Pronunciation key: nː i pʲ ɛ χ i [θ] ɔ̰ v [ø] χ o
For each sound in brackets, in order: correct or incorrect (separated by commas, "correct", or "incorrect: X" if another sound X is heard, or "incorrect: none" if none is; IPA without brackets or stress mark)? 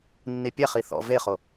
correct, incorrect: e